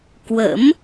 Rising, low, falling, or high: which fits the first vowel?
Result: rising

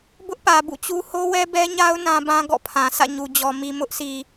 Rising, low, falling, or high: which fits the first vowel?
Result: high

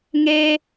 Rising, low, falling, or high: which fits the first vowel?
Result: high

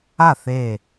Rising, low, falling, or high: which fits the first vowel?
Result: falling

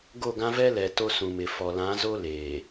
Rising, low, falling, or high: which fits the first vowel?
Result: falling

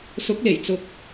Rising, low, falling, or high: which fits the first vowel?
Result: rising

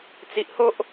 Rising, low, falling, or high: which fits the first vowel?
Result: low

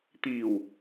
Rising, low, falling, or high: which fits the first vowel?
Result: low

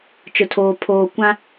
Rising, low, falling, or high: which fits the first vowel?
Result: low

